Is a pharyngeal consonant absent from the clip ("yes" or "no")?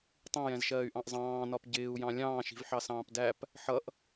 no